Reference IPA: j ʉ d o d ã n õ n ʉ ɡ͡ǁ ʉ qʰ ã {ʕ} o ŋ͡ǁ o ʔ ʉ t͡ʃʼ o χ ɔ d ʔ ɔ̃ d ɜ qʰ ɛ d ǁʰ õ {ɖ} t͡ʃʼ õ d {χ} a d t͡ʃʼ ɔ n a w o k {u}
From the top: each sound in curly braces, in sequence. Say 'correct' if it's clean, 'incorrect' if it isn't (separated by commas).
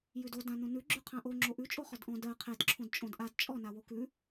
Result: incorrect, incorrect, incorrect, incorrect